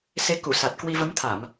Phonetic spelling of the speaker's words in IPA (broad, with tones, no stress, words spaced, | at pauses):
se˧ ku˧˩ sa˨˩t̚kwi˧ və˨˦mt̪ʰa˧˩˨m